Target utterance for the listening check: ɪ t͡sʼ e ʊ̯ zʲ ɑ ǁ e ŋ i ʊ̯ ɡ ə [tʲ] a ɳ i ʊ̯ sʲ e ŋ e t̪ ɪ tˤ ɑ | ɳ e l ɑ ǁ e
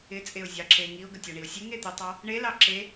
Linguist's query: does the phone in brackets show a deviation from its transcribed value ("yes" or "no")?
no